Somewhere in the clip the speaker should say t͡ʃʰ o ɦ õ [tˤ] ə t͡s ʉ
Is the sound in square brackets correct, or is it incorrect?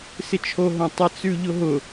correct